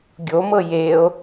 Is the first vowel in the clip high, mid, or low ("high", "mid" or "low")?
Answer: mid